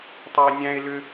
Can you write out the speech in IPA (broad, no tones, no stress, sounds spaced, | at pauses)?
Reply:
tˤ o e̯ nʲ æ̃ e̯ l ø